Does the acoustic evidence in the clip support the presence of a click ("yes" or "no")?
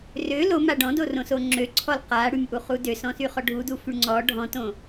yes